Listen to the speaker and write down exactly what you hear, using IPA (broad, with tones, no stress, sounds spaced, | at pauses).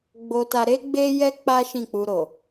ɡ͡b o˧ t a˧ ɾ e˦ ɡ͡b e˦ j ɛ˦ k͡p a˦ ʃ ĩ˦˨ k͡p u˧ ɾ o˨